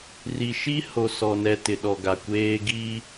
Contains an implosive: yes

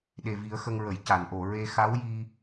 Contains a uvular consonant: no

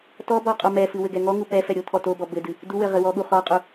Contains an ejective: yes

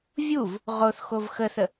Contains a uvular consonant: yes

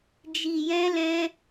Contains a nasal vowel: yes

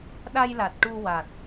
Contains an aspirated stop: no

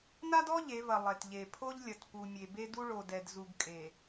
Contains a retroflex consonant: yes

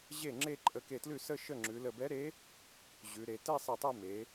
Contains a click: yes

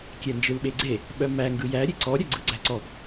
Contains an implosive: yes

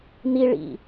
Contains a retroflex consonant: yes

